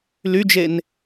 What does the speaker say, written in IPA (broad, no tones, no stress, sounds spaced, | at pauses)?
l y d͡ʒ e n